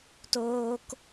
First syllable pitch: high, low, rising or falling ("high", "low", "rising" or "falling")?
high